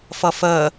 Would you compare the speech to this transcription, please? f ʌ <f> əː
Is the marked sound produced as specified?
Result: yes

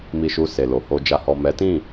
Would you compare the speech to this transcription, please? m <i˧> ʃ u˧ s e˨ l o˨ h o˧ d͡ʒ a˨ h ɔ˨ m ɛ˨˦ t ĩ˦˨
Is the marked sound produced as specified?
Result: yes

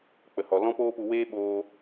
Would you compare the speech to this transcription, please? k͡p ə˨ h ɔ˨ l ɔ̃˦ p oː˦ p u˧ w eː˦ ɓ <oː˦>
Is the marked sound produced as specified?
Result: no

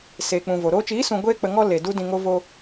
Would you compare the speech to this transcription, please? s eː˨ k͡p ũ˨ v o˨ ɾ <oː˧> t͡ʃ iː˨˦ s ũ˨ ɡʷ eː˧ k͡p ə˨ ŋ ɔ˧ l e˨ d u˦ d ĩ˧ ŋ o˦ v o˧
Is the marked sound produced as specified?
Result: yes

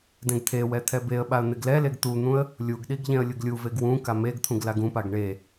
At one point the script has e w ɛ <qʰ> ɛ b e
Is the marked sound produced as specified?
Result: no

